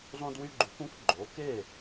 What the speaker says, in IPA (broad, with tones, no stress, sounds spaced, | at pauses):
zˤ ũ˧ d w y˧ ɡ͡ǃ u˩˥ k ũ˥ k ɡ͡ǃ o˩˥ k e˥˩